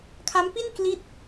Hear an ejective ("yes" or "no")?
no